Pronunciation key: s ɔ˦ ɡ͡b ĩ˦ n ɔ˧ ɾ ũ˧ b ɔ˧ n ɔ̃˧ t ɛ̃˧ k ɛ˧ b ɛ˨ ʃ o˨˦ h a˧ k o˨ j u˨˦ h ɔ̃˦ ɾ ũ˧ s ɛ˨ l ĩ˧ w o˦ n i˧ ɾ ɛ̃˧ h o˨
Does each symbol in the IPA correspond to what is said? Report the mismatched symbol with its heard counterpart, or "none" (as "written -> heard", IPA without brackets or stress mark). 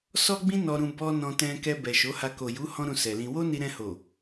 none